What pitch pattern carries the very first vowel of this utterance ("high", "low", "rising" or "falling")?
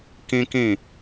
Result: high